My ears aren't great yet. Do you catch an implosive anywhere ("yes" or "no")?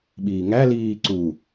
yes